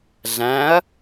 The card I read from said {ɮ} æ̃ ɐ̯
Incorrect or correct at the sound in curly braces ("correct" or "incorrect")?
correct